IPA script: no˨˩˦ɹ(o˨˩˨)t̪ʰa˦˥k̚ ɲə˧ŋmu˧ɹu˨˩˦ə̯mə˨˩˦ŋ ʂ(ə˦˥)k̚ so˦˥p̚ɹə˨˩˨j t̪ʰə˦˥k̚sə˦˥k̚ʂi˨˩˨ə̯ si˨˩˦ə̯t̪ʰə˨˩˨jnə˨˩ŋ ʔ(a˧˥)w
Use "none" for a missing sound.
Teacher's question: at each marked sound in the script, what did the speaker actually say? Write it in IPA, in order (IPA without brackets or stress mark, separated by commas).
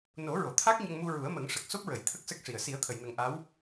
o˨˩˨, ə˨˩, a˧˥